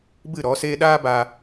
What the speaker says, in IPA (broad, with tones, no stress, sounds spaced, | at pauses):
b ɨ˦˨ ɾ ɔ˨˦ s eː˦ ɗ aː˦ b a˧